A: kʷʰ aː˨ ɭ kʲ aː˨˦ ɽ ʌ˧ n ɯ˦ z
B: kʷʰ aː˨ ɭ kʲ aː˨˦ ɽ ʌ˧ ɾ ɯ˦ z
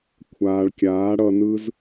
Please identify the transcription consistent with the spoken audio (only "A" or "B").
A